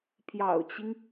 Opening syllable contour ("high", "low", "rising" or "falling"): low